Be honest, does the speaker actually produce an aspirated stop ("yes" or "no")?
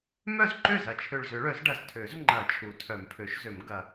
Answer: yes